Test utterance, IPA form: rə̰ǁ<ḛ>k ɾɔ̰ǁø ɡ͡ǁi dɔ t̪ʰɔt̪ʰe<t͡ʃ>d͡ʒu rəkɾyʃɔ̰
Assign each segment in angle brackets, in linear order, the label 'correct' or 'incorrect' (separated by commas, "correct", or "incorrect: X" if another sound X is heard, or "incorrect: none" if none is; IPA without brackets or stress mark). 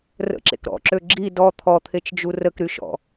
correct, correct